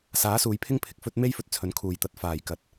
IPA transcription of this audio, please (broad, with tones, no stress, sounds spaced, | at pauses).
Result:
s aː˨˥ s uː˨˧ j pʰ ɪ˥ ŋ pʰ ɪ˧ k̚ f ɵ˥ t̚ m e˥ j f ɵ˧ t̚ t͡sʰ ɵ˨˧ n kʰ uː˨ j t̪ ɐ˨˥ t̚ f aː˨ j k ɐ˨ t̚